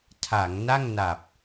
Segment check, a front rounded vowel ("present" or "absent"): absent